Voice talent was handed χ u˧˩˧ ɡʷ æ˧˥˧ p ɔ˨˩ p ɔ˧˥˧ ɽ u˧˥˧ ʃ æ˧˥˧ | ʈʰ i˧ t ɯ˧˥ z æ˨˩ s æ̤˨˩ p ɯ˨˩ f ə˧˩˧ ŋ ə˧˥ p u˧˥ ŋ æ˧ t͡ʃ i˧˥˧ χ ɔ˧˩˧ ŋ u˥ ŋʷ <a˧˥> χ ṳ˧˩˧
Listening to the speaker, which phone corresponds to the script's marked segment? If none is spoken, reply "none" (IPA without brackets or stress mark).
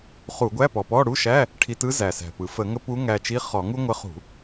ə˧˥